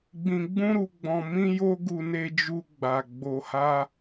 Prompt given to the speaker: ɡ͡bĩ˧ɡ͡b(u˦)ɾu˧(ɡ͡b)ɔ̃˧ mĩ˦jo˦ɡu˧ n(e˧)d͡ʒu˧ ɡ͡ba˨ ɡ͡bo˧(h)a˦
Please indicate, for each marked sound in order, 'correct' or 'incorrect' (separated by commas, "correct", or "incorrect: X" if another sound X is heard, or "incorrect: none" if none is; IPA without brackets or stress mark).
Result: incorrect: ũ˦, correct, correct, correct